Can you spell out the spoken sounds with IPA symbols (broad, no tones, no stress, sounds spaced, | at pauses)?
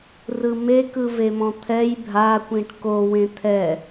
r ɯ m e k ɯ v e m ɔ̃ t̪ʰ ɛ j bʱ a kʷ ĩ ʈ k o w ẽ t̪ʰ ɛ